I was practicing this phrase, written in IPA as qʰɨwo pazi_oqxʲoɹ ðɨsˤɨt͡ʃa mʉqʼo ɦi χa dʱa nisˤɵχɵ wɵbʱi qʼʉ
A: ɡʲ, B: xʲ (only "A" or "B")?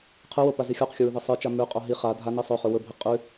B